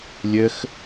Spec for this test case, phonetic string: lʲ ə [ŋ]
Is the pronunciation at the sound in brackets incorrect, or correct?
incorrect